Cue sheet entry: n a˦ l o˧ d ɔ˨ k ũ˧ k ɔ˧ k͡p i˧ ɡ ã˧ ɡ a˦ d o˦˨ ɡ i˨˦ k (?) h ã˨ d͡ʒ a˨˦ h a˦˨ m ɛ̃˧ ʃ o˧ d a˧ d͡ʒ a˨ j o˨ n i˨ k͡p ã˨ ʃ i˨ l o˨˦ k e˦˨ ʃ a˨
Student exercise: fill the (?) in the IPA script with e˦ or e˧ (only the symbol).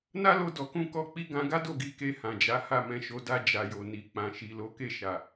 e˧